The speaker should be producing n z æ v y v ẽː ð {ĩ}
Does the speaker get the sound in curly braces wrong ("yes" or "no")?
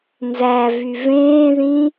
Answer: no